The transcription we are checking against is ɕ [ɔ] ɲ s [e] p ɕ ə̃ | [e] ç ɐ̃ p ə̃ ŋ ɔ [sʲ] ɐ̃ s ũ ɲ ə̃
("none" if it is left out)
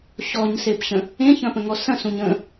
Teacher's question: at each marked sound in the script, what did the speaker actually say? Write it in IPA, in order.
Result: ɔ, e, ẽ, s

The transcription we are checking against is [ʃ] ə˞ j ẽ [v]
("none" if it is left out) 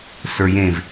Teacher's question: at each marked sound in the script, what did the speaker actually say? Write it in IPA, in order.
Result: s, v

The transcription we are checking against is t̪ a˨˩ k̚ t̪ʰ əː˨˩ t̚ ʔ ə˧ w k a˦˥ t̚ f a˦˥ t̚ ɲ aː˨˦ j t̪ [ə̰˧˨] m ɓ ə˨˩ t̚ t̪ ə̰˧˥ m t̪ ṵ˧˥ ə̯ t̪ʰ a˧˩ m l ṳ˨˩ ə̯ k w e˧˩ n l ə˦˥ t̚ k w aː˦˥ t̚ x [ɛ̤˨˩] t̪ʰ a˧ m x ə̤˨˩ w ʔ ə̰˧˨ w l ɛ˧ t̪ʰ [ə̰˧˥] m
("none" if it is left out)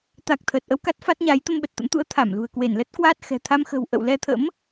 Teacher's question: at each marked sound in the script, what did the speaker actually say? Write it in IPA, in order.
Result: ə˧, ɛ̤˨˩, ə̰˧˥

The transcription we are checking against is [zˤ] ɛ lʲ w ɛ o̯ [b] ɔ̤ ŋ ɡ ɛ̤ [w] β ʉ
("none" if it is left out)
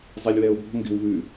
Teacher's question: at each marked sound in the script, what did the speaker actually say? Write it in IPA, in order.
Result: zˤ, b, w

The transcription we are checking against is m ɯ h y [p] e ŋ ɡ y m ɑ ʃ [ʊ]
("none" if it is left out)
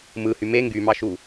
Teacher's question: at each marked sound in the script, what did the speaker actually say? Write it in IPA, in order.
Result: m, u

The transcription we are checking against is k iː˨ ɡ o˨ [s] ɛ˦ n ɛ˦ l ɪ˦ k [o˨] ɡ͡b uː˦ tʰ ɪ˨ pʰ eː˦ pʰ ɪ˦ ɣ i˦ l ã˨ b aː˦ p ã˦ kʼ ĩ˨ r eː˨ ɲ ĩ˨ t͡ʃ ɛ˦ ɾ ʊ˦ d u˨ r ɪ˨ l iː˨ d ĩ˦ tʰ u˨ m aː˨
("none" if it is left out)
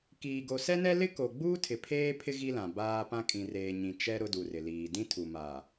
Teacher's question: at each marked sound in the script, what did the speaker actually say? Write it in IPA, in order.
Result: s, o˨

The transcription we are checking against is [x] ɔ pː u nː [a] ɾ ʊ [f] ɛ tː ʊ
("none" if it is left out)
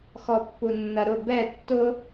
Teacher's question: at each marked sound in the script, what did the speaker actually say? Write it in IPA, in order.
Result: x, ɐ, b

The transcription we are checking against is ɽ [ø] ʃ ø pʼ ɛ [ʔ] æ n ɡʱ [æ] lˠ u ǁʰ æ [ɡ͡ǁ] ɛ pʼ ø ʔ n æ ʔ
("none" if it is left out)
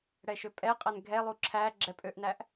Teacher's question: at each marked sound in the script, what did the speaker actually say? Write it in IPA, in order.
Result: ɛ, qʼ, ɛ, ɡ͡ǁ

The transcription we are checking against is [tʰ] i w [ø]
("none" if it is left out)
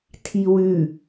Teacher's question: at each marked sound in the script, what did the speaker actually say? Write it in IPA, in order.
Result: tʰ, ʉ

